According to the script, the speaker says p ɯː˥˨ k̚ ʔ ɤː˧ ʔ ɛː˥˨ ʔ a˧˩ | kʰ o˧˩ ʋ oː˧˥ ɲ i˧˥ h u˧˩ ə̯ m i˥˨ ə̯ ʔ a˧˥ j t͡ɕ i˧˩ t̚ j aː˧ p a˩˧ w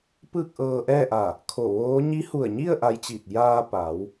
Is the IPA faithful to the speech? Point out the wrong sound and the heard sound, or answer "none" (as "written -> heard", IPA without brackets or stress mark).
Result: m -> ɲ